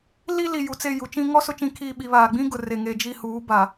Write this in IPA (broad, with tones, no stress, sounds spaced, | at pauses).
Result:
l i˦ l i˨ j u˨ t͡s e˦˨ j u˨ t͡ʃ ĩ˦ ŋ ɔ˦ s ʊ˦ t͡ʃ ĩ˦ kʰ iː˦˨ ɓ i˨ β aː˨ ɡ͡b ĩ˦ ɡ ʊ˨ r e˨ ŋ e˨ d͡ʒ i˦˨ h uː˨˦ b a˨